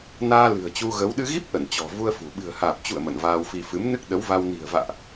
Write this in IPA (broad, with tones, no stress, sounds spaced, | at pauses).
n aː˧ l ɨ̤˨˩ ə̯ t͡ɕ u˧ ɣ ə˨˦ w ɗ ɨ˧ ɣ i˦˥ p̚ ʔ ə˧˩ n t͡ɕ ɔ̤˨˩ v u˧ ə̯ f ṳ˨˩ ɓ ɨ̤˨˩ ə̯ h aː˨˩ p̚ t͡ɕ ṵ˧˨ ə̯ m ə̰˧˨ n v aː˧ w f i˧ f ɨ˨˦ m n ɨ˦˥ k̚ ɗ ə˨˦ w v a˧ w n i̤˨˩ ə̯ v a̰ː˧˨ ʔ